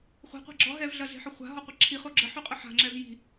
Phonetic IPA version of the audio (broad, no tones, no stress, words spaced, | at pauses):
χʷe̤qʷa̤ ɡ͡ǁɔ ɦɛvɮɐɮe̤ħə χʷa̤ɦɔqʷi ǁʰiχo ɡ͡ǁəħyqʼə ħa̤ŋ͡ǁɛv ji̤